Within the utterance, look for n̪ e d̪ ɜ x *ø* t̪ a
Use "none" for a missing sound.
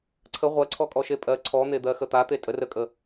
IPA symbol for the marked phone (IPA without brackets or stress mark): ə